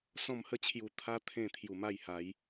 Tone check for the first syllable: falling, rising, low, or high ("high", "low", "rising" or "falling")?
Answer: falling